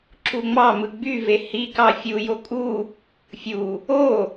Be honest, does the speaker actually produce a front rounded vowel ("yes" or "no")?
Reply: yes